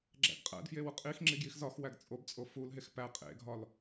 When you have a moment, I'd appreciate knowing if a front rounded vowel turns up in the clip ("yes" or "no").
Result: no